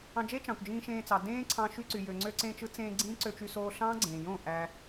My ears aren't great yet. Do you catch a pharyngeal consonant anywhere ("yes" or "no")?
no